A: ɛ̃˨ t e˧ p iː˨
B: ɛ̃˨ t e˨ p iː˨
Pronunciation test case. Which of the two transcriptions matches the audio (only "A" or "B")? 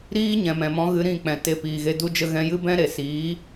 A